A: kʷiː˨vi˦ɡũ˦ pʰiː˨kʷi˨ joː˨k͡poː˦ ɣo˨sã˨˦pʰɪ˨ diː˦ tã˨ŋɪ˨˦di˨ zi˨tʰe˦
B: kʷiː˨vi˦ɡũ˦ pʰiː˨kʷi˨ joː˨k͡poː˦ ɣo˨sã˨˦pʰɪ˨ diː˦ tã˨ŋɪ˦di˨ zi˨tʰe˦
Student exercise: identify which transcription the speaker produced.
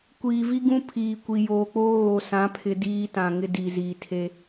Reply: B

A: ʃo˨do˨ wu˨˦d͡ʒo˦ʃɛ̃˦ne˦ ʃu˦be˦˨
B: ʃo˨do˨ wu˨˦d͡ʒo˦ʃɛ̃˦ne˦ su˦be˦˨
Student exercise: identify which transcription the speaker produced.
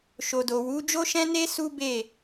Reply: B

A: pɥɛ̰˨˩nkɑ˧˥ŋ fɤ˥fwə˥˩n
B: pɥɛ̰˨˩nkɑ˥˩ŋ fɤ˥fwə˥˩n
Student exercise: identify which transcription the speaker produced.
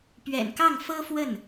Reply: B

